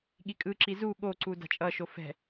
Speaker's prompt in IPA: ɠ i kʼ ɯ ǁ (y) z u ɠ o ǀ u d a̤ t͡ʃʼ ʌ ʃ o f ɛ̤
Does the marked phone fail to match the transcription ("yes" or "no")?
yes